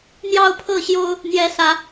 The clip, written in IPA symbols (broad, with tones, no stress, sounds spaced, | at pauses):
n̪ j ɑ˥˨ ʊ̯ pʰ ɤ˥˨ ɕ j o˦ ʊ̯ | n̪ j ɛ˨˦ s ä˨˦